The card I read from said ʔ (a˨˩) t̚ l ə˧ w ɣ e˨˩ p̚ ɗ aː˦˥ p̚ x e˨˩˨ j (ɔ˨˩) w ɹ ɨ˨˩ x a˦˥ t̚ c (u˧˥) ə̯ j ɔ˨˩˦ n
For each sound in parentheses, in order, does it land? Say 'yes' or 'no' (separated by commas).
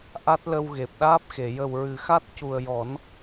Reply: no, no, no